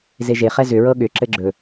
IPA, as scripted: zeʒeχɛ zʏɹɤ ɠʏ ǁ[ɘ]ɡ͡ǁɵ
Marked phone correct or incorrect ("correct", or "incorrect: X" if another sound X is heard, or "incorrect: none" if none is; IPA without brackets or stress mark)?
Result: correct